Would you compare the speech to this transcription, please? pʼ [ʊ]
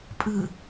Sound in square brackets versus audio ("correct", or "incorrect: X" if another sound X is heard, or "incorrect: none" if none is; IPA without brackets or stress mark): incorrect: ɯ